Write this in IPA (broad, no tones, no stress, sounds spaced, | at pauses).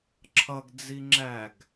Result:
ǁʰ ʌ ɡ d͡z i ŋ͡ǁ æ ɡ